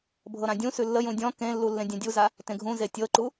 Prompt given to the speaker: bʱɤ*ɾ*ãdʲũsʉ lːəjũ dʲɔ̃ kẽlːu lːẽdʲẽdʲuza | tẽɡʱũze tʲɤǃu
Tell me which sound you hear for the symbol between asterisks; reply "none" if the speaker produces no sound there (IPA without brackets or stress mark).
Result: ɾ